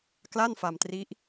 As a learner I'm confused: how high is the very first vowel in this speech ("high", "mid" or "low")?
low